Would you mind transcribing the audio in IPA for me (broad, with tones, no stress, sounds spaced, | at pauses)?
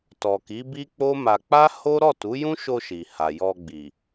t ɔ˨ k i˨˦ b i˦ k͡p o˦ m a˧ k͡p a˦ h o˦ ɾ ɔ˦˨ t u˨˦ j ũ˦ ʃ o˧ ʃ i˨ h a˨ j ɔ˧ ɡ͡b i˨